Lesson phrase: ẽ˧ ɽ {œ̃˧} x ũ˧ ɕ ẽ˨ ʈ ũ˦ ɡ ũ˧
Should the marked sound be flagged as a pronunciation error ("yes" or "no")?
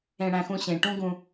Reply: yes